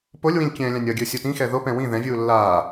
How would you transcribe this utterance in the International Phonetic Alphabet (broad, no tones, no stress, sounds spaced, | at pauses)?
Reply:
p o lʲ w ĩ lʲ kʲ ɛ̃ː lʲ ã nʲ ʌ ɡʲ ɯ sʲ u t ĩ x ɛ ð o p ɛ̃ w ĩ ð ɛ̃ vʲ uː lː aː